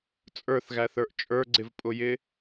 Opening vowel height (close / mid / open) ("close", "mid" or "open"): mid